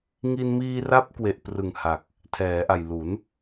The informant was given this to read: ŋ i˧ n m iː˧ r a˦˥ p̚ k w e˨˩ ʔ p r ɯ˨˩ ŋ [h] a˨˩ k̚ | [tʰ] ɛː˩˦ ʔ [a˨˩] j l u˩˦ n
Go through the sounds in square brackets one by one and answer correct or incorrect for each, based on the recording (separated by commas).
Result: correct, correct, correct